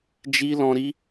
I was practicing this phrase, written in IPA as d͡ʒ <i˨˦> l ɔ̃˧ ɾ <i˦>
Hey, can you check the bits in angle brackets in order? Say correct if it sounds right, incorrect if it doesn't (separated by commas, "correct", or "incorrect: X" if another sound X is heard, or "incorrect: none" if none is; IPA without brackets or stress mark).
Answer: incorrect: i˦, correct